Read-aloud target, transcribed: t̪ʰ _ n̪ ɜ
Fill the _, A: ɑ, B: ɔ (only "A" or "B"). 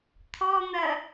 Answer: B